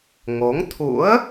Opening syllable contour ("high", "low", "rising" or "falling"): rising